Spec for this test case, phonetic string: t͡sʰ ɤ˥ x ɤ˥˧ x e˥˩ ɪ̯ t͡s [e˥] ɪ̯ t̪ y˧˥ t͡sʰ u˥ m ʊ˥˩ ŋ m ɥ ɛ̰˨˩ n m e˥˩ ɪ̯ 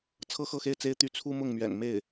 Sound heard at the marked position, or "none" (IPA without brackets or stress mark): e˥